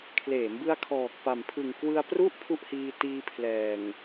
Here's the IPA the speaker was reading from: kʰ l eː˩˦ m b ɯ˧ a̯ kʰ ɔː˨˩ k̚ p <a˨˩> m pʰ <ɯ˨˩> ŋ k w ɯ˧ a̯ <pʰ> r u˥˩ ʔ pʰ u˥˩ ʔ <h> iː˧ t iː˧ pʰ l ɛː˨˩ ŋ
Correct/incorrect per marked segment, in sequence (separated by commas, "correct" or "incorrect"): correct, correct, incorrect, correct